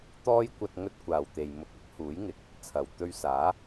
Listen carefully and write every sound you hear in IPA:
t̪ ɔː˥ j kʷ ɐ˧ t̚ ŋ ɵ˥ t̚ kʷ aː˨ w t̪ e˨ j m ʊ˨˥ k̚ ɪ˨˥ k̚ h uː˨˥ j ŋ ɪ˨˥ k̚ | t͡sʰ ɐ˨ w t̪ ɵ˧ ɥ s aː˨˥

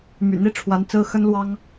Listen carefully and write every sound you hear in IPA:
m y̰˨˩ n̪ i˥ ʈ͡ʂʰ w a˧˥ n t͡s ɹ̩˥ x ə˥ n l w ɑ˥ ŋ

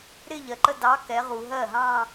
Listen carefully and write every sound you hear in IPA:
ɾ ɪ˥˧ ʎ ɜ˩ ǃ ə˥˧ d ɑ˧˥ k ɛ˩˧ ʁ u˩ ɦ ɜ˥˩ ɦ ɑ̃˥˧

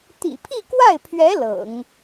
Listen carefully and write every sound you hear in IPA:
t̪ ḭ˨˩ pʰ i˥˧ k w a˥˩ ɪ̯ pʰ ɥ ɛ˧˥ l ɤ̰˨˩˦ ŋ

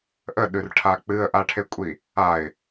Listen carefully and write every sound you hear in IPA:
ʔ ə ɗ ʉ r ʈʰ a k͡p ɨ ə̯ ʔ a ʈʰ e kʷʼ i | a ɪ̯

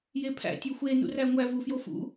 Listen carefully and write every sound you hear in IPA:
j e pʰ æ̰ tʲ o xʷ e n ṵ r æ ŋʷ æ v u f j o f ṵ

